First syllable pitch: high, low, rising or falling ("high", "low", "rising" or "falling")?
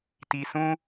low